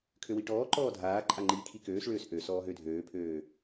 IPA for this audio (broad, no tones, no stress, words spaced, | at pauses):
kʰøwiʈɔːǃɔː dʱaːǃʼa ŋ͡ǃiːkʰikøːsɭøːs ʔø sɔːɦødʱøːpʰøː